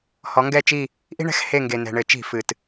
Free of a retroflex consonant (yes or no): no